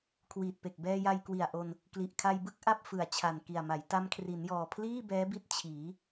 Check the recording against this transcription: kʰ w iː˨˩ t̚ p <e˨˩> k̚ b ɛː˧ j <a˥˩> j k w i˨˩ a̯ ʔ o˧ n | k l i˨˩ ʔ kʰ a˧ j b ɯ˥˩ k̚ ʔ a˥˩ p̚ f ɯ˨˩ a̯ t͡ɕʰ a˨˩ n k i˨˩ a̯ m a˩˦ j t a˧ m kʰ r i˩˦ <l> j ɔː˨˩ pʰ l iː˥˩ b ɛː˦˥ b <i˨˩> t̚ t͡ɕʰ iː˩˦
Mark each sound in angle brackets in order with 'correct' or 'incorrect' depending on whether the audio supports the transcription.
correct, incorrect: a˧, incorrect: n, incorrect: i˦˥

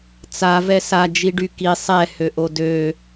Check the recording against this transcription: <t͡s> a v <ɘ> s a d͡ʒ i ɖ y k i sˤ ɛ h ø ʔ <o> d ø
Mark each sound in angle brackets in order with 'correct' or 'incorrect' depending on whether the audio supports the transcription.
correct, incorrect: ɛ, correct

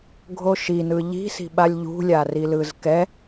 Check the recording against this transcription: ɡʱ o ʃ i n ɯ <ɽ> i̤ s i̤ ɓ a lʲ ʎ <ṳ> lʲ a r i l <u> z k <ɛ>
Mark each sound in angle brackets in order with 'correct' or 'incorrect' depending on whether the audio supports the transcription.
incorrect: ʎ, correct, incorrect: ɯ, correct

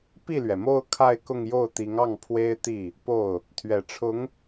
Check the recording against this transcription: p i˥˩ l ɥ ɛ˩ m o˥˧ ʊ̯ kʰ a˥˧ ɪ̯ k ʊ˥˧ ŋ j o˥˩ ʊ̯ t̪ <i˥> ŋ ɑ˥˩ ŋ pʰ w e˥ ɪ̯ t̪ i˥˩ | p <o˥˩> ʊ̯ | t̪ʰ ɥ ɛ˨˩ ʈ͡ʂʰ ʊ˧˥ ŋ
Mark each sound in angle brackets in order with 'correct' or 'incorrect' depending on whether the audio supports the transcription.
incorrect: i˧˥, correct

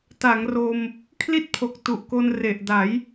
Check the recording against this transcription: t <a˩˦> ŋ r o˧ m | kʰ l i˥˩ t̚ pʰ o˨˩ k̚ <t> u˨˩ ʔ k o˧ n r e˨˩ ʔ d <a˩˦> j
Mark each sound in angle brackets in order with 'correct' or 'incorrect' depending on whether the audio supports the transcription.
correct, correct, correct

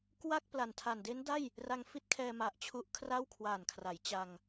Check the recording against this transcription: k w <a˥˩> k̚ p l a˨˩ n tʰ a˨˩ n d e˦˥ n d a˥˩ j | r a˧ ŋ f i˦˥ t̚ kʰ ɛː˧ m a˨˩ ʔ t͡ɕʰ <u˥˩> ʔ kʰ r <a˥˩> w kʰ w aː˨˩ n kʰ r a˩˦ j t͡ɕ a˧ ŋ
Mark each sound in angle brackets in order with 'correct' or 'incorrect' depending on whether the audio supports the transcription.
correct, incorrect: u˦˥, correct

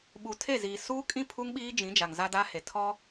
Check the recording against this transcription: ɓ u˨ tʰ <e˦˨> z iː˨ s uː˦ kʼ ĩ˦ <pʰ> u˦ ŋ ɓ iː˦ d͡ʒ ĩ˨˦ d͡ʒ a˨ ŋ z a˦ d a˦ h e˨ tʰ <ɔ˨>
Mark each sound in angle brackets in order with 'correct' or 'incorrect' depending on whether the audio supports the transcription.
correct, correct, incorrect: ɔ˦

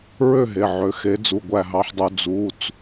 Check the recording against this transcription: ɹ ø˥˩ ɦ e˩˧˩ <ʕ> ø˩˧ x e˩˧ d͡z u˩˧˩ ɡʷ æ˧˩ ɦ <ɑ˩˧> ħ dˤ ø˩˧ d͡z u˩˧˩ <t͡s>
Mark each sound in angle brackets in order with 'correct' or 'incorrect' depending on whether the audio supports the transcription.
correct, correct, correct

